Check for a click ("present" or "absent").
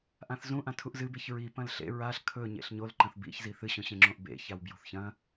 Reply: present